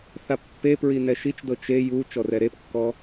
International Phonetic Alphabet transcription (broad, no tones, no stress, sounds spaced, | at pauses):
θ a pː e p ɹ i n ɛ ʃ i t͡ʃ d ɤ t͡ʃ e j u t͡ʃ ɔ r ɛ ɾ e p kː ɔ